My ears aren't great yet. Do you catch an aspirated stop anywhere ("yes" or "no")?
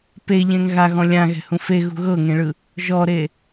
no